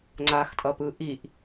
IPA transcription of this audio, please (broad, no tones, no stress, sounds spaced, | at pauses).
ŋ͡ǀ a x tʼ ʌ p ɯ ʔ i ʔ